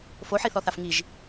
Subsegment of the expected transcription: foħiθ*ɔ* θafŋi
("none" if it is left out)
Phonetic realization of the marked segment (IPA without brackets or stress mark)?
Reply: ɔ